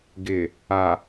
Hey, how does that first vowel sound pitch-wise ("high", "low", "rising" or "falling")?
low